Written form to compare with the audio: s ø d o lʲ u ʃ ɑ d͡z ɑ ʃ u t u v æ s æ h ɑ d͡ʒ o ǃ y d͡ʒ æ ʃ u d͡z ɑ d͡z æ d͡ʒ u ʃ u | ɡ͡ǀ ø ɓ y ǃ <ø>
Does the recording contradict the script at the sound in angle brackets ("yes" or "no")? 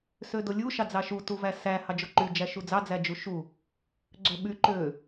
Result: no